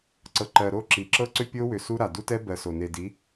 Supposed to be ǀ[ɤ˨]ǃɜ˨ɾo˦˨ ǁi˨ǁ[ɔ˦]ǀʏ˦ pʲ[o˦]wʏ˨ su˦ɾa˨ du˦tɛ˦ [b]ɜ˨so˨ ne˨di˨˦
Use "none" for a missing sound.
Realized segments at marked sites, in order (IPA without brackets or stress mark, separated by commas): ɤ˨, ɤ˦, o˦, b